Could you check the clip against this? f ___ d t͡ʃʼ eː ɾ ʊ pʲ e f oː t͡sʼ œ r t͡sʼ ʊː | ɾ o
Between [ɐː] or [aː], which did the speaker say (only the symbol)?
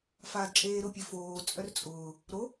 aː